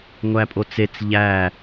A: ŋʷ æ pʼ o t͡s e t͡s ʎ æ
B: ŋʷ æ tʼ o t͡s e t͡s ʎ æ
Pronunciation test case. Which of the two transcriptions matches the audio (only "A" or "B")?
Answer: A